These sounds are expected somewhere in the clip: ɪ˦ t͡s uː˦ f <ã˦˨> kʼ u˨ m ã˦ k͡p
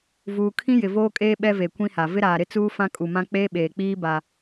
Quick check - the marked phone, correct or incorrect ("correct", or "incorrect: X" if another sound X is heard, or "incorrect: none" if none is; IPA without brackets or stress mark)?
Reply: incorrect: ã˦